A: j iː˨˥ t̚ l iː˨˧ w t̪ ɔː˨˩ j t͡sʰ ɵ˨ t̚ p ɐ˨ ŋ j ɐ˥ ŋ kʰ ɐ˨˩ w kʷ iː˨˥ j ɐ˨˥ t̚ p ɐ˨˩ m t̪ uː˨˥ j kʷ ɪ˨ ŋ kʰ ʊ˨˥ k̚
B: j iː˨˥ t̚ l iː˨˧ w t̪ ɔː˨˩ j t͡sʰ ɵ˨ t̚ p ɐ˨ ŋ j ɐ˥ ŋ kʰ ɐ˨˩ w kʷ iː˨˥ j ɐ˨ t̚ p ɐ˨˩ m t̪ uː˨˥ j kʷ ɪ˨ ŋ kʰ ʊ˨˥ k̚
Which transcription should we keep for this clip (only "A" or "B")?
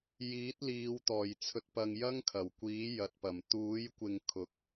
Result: B